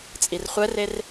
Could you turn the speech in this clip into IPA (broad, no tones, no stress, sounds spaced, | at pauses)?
t͡sʼ i r χʷ ɛ r e r